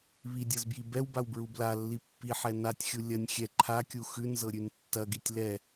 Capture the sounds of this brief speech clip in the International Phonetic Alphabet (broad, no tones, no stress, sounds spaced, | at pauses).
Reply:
β i dʲ ɤ z b j i b ɛ w b a w b ɹ u b l a lː i pː i ħ ɛ n a tʲ xʲ u lʲ ɐ nʲ xʲ ɛ ǃʰ a kʲ u x ʉ n z ɤ ɾʲ ʉ n tː ɐ ɡ i tʲ l ɛ